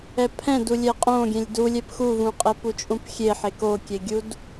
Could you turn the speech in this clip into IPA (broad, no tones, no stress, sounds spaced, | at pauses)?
ɛ pʰ ɛ̃ d u lʲ ɛ qʼ õ ɡʲ ɛ̃ lʲ d u lʲ ɛ p x u v ũ qʼ ɛ p u t͡ʃʼ ũ p xʲ e ħ e k o kʲ e ɡʲ u d